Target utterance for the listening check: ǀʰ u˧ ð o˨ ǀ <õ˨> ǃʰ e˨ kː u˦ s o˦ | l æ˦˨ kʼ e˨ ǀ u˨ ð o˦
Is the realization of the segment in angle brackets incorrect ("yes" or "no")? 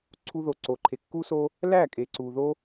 yes